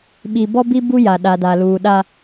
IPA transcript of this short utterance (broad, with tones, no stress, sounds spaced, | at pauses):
ɓ i˨ b ɔ˦ b i˦ b u˦ j a˨ ɗ a˨ d a˨ l uː˨ ɗ a˦